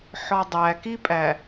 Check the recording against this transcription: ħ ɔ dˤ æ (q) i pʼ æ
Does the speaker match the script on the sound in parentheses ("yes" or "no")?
no